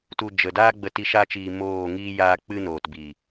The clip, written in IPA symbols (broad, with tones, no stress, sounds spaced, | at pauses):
t u˨ d͡ʒ ə˨ d aː˦ ɡ͡b ə˧ t i˧ ʃ a˧ t͡ʃ iː˨ m oː˦˨ ŋ iː˧ j aː˧ k͡p ɨ˧ n oː˨ t b iː˨